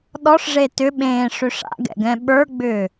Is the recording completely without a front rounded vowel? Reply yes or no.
no